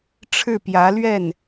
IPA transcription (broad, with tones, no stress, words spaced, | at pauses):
ʈ͡ʂʰɻ̩˥˩pjä˧˥lɥɛ˥˩n